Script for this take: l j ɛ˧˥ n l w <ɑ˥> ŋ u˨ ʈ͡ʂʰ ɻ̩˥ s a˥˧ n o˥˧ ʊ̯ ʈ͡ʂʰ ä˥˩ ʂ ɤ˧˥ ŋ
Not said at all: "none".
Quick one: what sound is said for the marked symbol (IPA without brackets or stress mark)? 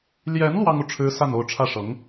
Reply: ɑ˥